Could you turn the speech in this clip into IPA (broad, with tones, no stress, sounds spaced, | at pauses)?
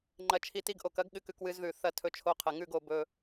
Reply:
ŋ͡ǃ ɐ˧ t͡ʃʰ i˧ t i˧ ɡ ʔ o˨ k ɐ˨˦ ɡ ɠ ɨ˧ k ʉ˧ k w ɨ˧ z ð ʉ˨ θ ɐ˦˨ tʰ ɵ˧ t͡ʃʰ o˧ qʰ ɐ˨ ŋ ʉ˦˨ ɡ o˨ b ɵ˧